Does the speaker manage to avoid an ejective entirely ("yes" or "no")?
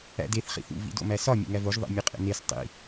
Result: no